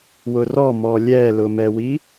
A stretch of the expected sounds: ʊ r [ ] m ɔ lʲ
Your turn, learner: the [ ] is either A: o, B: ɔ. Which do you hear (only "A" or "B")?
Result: B